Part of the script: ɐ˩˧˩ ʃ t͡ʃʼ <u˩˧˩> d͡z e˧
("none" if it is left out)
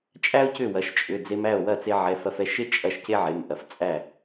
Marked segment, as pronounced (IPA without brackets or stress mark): ʏ˩˧˩